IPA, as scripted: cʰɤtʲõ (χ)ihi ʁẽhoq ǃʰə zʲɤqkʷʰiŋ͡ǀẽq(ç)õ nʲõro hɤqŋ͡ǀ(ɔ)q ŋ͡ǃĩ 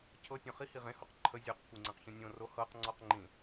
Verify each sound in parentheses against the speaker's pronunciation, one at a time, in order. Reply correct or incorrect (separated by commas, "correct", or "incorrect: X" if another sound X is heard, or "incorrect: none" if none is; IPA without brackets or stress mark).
correct, correct, correct